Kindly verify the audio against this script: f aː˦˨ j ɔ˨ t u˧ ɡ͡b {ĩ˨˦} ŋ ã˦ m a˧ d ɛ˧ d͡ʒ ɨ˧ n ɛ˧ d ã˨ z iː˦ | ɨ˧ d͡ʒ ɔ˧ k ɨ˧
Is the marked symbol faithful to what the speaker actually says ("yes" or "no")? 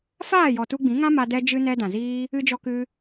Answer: yes